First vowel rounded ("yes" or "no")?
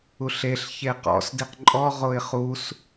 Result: yes